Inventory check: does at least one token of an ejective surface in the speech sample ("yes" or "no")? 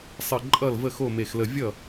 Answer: yes